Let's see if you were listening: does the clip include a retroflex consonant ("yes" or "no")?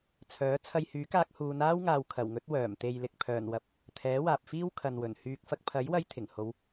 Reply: no